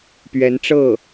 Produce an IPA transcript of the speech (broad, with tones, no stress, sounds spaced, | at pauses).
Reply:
p ɥ ɛ˧˥ n ʈ͡ʂ ɤ˥˩